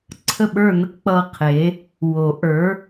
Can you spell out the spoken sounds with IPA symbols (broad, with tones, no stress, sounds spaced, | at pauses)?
ǀʰ ə˥˧ ɓ ə˞˥˧ n ə˥˧ k k͡p ʌ˥˧ qʰ e˨˥ | w o˨˩˦ ʔ ə˞˨˥